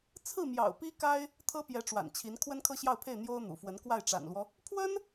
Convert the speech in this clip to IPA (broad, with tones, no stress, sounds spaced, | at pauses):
t͡sʰ ɹ̩˥˩ m j ɑ̰˨˩ ʊ̯ p i˥ k a˥ ɪ̯ | t̪ʰ ɤ˥ p j ɛ˧˥ ʈ͡ʂ w a̰˨˩ n t͡ɕʰ i˧˥ n kʰ w ə˥ n kʰ ɤ˥ ɕ j ɑ˥˧ ʊ̯ pʰ e˥˩ ɪ̯ n̪ j o˥ ʊ̯ n̪ ṵ˨˩ f w ə˧˥ n k w a˥˩ ɪ̯ ʈ͡ʂ a̰˨˩ n l w ɔ˦ | pʰ w ə˥ n